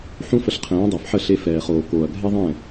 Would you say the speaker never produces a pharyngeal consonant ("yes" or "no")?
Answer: no